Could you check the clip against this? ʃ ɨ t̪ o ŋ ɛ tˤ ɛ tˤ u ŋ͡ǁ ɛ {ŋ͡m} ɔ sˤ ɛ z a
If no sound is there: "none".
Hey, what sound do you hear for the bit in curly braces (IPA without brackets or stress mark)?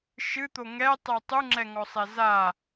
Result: ŋ